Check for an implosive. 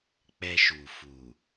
absent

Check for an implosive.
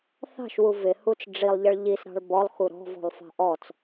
absent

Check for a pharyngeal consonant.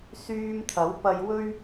absent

